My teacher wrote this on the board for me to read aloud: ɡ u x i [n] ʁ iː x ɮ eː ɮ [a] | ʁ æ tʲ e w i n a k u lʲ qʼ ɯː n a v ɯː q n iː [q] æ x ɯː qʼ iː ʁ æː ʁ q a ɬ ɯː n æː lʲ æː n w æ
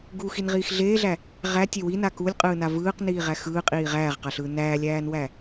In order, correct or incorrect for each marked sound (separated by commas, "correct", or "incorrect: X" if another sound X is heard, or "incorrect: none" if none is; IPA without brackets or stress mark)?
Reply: correct, incorrect: æ, incorrect: ʁ